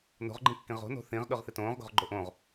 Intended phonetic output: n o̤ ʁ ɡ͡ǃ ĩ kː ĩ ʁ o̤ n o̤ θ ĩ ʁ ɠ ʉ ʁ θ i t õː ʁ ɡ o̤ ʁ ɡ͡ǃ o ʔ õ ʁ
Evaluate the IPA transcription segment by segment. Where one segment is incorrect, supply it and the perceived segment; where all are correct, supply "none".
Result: none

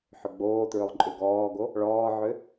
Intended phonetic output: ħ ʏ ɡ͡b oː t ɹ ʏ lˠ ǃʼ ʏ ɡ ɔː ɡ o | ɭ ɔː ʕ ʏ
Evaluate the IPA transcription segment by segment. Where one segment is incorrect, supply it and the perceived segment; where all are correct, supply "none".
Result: none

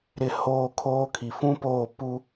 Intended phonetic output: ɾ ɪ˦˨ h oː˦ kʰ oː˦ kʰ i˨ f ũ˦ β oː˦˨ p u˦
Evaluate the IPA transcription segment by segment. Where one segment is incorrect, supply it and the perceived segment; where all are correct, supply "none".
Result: β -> p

